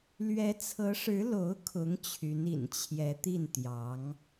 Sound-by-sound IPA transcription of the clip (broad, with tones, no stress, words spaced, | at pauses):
lɥɛ˧˥t͡sʰɤ˧˥ʂɻ̩˧˥ lo˧˥ʊ̯kʰʊ˧˥ŋ t͡ɕʰy˧˥nḭ˨˩n t͡ɕʰjɛ˧˥t̪i˥˩n t̪jɑ˧˥ŋ